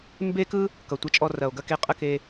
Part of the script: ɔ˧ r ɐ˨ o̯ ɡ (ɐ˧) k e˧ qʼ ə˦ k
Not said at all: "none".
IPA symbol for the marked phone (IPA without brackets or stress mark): ɐ˧